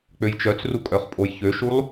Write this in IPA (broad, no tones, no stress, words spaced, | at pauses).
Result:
k͡pøjt͡ʃœt͡sru kʼœχpʼojçøʃulˠ